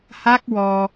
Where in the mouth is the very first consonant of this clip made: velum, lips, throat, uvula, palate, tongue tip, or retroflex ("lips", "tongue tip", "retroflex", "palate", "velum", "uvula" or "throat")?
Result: throat